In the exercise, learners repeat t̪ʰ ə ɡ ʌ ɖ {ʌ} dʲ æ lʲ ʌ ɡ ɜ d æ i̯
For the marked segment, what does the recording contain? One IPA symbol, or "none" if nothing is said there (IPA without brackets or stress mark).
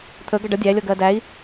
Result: ʌ